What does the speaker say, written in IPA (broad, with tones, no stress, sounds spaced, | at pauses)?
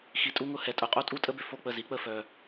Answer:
x i˨ tʼ u˦ ŋ ʊ˦˨ h ɛ˨ tʼ ʊ˨˦ qʼ o˦ tʼ u˦ tʼ ə˦ b ʏ˨ f o˦˨ k͡p ə˦˨ z i˨˦ k͡p ə˦˨ f œ˨